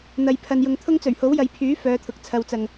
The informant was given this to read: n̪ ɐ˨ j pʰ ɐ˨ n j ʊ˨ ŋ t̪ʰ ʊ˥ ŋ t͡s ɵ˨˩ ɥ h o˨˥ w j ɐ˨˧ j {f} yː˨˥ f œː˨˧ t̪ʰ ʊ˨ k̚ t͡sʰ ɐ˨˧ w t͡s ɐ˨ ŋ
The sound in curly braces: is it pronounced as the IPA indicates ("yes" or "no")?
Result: no